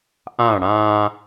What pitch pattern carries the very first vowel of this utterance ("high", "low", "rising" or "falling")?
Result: falling